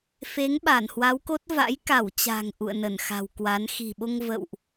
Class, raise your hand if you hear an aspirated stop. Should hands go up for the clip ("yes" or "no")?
no